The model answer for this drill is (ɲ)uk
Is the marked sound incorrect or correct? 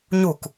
correct